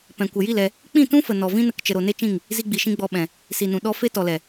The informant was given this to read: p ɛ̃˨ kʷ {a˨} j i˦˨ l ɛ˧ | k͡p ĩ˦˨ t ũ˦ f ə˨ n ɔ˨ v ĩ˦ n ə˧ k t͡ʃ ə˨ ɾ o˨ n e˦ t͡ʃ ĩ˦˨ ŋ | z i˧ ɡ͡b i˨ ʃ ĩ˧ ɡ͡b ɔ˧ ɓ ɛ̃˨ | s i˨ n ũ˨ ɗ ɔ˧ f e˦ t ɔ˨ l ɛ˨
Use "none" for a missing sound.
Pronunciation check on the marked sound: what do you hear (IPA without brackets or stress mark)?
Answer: ə˨